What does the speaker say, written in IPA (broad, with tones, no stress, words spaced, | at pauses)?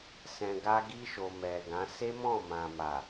sɛ̃˨ɡa˧ɡi˧ʃo˨ mɛ˨ɡã˨˦ se˦mɔ̃˦˨mã˨ ma˨